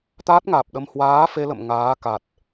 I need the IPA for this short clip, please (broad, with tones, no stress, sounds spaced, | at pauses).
t̪ aː˦˥ t̚ ŋ aː˨˩ p̚ ɗ ə˧ m h w aː˨˦ f e˧ l ə̰˧˨ m ŋ aː˨˦ k a˨˩ t̚